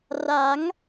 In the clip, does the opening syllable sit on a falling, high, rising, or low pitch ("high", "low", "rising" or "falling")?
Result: rising